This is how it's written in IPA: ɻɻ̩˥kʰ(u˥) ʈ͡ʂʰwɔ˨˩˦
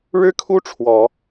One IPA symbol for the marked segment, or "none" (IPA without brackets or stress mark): u˥